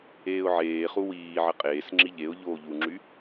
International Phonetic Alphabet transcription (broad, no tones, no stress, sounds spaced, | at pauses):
eː ʊ̯ ʕ eː χ u w iː ʕ ə qʼ eː s ŋ͡ǁ i ʎ e ʊ̯ ʎ oː ʎ u ŋ͡ǁ y